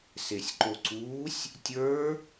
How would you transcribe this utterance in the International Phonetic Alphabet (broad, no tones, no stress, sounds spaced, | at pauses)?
s e sʲ ǃ o ǀ uː sʲ | tʲ ə˞